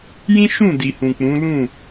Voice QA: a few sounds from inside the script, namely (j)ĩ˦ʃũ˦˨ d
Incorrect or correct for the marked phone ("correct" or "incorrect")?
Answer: correct